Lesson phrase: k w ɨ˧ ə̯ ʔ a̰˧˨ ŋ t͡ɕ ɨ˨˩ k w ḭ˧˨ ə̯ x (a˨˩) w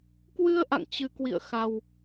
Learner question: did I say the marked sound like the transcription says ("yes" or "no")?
yes